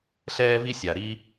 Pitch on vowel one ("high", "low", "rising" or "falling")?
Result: high